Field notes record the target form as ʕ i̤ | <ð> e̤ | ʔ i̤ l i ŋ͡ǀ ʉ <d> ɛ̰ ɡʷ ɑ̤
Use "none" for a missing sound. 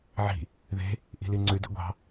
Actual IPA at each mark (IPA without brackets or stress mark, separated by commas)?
ð, d